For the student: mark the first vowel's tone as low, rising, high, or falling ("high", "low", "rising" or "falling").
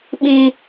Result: high